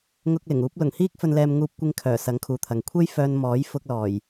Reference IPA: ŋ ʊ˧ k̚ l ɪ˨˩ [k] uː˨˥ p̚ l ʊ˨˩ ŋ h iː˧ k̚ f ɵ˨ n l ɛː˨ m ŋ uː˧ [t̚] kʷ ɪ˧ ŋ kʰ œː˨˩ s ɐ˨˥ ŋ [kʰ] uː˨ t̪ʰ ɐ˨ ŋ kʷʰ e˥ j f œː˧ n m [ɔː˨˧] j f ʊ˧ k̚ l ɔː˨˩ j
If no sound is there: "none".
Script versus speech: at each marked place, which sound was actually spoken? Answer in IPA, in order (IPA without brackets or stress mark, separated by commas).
ŋ, p̚, kʰ, ɔː˨˥